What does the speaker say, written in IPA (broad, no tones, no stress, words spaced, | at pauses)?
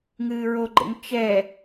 ŋɨːɹoɡ͡ǃḛŋ t͡ʃɛ